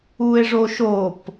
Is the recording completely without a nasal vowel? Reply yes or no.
yes